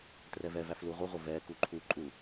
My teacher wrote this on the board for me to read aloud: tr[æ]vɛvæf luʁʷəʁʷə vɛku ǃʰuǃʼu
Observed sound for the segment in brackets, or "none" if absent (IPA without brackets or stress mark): ɛ